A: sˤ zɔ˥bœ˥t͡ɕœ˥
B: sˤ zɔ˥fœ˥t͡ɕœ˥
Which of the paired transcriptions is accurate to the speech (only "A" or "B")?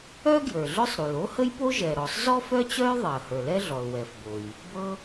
B